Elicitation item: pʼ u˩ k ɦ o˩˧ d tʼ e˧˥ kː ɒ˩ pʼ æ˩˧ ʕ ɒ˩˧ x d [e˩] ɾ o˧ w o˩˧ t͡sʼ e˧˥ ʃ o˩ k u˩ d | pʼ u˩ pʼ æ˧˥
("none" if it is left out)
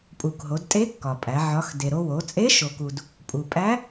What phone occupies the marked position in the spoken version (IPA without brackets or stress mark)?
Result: e˩